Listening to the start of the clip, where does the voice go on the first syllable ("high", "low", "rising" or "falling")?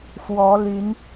rising